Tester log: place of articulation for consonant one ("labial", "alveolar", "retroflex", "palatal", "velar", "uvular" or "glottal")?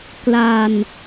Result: velar